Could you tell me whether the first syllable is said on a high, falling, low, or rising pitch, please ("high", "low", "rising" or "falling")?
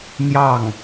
falling